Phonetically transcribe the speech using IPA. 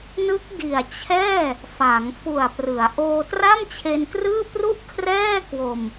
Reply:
nɯ˦˥k̚ di˨˩a̯t͡ɕʰɛː˥˩ | fa˩˦ŋ fu˨˩a̯prɯ˩˦a̯ ʔoː˧tra˥˩mt͡ɕʰe˧nkrɯː˥˩ pru˥˩ʔkʰrɛː˥˩kwo˧m

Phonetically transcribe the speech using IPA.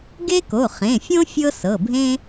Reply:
ɡe˥ko˩˧˩χẽ˩˧˩fʲõ˥ fʲɤ˥sɤ˩˧˩bʱẽ˥

